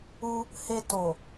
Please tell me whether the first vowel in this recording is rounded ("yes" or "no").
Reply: yes